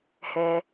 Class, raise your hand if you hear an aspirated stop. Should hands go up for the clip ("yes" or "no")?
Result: no